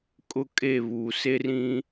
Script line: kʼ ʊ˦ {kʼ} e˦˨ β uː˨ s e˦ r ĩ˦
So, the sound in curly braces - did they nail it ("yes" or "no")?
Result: yes